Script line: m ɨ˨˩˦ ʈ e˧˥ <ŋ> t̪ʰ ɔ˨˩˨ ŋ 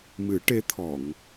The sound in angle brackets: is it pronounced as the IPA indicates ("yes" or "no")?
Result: no